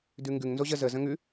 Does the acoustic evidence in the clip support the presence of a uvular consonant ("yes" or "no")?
no